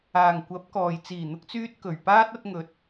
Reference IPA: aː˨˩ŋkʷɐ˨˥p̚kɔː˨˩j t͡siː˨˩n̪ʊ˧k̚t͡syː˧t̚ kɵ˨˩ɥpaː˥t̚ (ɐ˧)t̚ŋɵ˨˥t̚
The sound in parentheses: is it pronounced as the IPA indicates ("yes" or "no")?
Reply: yes